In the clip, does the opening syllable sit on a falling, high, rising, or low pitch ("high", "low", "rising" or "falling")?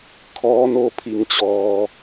rising